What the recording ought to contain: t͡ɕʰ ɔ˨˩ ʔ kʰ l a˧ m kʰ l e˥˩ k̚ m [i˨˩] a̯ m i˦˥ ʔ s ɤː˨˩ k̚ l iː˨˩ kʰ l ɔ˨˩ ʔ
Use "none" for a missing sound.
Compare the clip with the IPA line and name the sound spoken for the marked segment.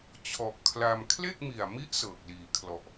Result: i˨˩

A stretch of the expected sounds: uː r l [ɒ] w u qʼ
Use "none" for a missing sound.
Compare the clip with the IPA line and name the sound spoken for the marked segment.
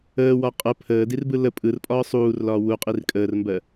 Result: ɒː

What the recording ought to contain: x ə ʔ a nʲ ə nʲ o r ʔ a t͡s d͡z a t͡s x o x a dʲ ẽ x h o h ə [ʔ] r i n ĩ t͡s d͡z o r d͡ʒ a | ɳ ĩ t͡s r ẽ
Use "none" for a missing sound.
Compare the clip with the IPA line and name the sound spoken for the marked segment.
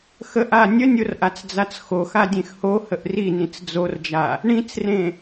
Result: ʔ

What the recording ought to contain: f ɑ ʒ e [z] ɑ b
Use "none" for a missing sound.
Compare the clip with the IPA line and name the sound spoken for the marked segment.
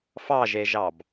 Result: ʒ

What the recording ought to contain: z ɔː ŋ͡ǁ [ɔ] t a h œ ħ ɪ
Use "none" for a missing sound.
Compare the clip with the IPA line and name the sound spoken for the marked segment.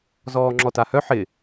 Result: ɔ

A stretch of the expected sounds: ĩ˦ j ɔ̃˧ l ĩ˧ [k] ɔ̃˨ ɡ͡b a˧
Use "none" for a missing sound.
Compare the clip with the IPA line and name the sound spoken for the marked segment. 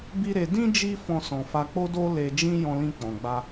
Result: k͡p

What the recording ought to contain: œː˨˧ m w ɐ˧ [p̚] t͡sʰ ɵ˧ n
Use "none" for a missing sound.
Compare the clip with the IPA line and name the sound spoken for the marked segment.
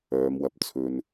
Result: p̚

